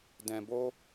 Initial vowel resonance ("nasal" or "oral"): nasal